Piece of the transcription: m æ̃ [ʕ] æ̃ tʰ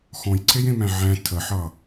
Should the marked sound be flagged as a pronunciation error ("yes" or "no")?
no